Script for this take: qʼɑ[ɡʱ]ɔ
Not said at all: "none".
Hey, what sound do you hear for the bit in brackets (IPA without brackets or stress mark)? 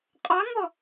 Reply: ŋ